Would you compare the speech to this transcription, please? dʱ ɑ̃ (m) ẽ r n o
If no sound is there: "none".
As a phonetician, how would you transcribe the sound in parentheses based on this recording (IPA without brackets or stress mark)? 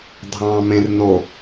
m